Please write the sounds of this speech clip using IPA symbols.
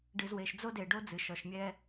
ɖɨ˨zwe˨ʃd͡zo˦ de˨ɖo˦ d͡zɨ˨ʃɔ˨ʃmʲɛ˦

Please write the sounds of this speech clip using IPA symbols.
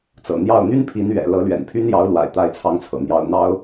t͡sɤ̰˨˩n̪jɑ˥˩ʊ̯ n̪y˥npʰi˧˥n ɥɛ̰˨˩lɤ˧˥ lɥɛ̰˨˩npʰy˥n jɑ˧˥ʊ̯lwa̰˨˩ɪ̯ t̪a˥ɪ̯t͡sʰɑ˥ŋt͡sʰɤ̰˨˩n̪jɑ˥ʊ̯ n̪ɑ˥ʊ̯

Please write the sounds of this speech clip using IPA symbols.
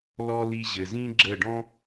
lɔ˧ li˧ʑɘ˨zĩ˦ɡ͡ǁə˦˨ ɖɔ̃˦

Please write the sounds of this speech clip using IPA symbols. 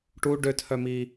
ʈu ɖøtʰœmi

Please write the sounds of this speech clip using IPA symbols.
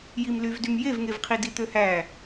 jimlyvdym jevŋevqʰi dit̪øhæ

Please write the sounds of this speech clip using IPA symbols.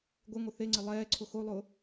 ɡʷɪŋʷɪ θeŋ͡ǀɪ lˠɛː ǀʰʊxolˠʊː

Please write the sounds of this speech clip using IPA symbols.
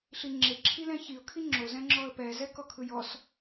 ɬiŋ͡ǁeǁʰilɛ̃ çiʊ̯kʰi ŋ͡ǁozɛ̃ŋ͡ǁɔə̯ pɛzɛ kɔkʰɯjɔs

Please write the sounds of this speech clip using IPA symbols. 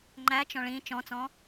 ŋ͡ǃæ t͡ʃɔ̃ɭĩ t͡ʃɔ̃t͡sɔ̃

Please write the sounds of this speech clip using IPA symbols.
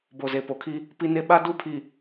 bo˨ze˨po˨kʰi˦ | pi˦ne˦ ɓa˦ du˦pʰi˨

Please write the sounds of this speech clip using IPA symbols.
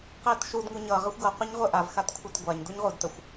qetʃudŋu ɲʌ ʁəxʷɡʌ qʷeɲʁʷeʔav xatkʷʰetɡʷaɲ duɲʁudtəxʷ

